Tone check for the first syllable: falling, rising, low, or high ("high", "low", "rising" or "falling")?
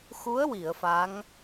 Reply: rising